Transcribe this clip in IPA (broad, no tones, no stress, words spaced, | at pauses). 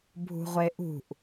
bʱṳʁʷeʔṳʔ